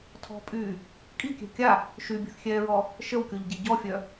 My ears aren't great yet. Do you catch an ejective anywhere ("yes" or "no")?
yes